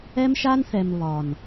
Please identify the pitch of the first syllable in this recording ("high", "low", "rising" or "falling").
high